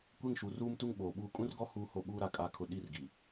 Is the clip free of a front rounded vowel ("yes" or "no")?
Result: yes